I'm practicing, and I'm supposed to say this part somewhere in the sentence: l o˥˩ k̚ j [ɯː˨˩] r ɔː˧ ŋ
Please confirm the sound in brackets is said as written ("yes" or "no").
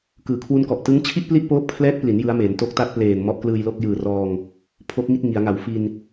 yes